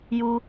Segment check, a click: absent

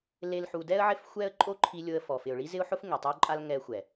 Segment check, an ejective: present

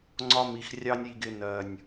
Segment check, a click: present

